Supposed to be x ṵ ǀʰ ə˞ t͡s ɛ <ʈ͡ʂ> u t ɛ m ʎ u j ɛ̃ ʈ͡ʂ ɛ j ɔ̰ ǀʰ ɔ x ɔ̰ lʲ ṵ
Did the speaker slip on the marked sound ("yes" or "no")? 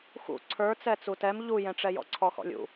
yes